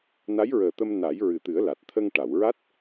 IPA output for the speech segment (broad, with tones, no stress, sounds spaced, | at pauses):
n a˧˥ j ɹ əː˨˩ t̪ ə˧ m n a˨˩˦ j ɹ ɨ˨˩ t̪ ɨ˨˩˦ ə̯ l a˨˩ t̚ t̪ʰ ə˧ ŋ ʈ a˨˩˨ w ɹ a˦˥ t̚